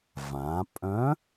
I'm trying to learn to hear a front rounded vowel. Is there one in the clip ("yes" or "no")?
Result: yes